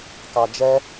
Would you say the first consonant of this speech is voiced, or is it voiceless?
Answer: voiceless